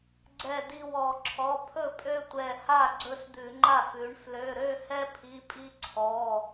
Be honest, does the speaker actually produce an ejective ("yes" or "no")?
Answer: yes